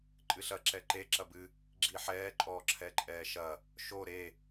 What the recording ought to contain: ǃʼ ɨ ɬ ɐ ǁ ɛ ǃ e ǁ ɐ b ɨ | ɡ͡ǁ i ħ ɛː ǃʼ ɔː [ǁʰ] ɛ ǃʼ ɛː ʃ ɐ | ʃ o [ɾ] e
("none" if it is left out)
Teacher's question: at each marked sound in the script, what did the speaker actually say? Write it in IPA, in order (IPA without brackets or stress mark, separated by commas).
ǁʰ, ɾ